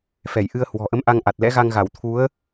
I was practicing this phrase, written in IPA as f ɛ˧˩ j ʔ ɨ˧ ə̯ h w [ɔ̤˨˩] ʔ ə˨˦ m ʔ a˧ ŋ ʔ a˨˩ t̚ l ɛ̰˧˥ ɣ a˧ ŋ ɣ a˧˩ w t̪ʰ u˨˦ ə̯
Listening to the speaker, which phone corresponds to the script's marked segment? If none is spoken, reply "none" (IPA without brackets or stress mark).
ɔ̤˨˩